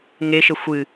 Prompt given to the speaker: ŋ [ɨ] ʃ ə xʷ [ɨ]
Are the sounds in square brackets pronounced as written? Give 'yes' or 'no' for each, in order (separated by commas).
no, yes